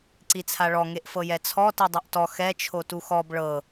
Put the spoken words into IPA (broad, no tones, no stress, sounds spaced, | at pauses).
ǀ i t͡sʰ a ɭ ɔ ŋ e ʔ f ɤ j ɛ t͡sʰ ɔ t i dˤ u ʔ t ɔ x ɛ t͡ʃʰ o t u x ɔ b ɭ ɤ